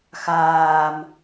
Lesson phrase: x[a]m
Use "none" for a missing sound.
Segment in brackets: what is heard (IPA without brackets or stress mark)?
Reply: aː